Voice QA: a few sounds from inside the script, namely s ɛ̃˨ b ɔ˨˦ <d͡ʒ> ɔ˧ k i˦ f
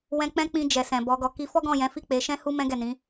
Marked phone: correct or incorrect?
incorrect